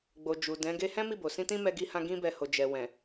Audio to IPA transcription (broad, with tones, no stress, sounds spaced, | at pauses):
ɡ͡b o˨ d͡ʒ u˨ d ɛ̃˨˦ ɡ e˧ h ɛ̃˦ m i˦˨ b o˨ s ĩ˧ t ĩ˦ m ɛ˦ ɡ i˦ h ã˦ ɡ ĩ˧ b ɛ˧ h o˨ d͡ʒ ɛ˨ w ɛ̃˨